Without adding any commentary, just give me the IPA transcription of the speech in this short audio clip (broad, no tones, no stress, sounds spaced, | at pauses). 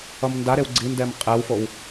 ʌ m n d a ɾ e w ɡ͡ǀ i n d ɛ m qʼ ɛ w f o w